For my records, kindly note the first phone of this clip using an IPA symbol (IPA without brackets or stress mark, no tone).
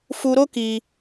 f